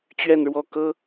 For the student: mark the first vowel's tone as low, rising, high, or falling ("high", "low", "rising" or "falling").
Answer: falling